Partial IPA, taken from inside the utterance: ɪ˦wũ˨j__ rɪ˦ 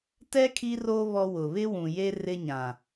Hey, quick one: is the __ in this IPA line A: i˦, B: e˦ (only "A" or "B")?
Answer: B